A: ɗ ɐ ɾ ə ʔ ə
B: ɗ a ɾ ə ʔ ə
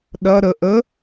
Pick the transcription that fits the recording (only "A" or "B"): A